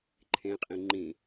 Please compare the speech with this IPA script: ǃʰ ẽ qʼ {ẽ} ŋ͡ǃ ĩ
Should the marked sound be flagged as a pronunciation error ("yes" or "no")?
yes